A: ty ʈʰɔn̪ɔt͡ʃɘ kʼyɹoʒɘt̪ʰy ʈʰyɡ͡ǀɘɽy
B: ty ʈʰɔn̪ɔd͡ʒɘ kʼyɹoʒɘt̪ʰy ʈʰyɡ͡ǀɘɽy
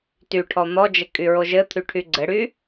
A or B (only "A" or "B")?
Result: B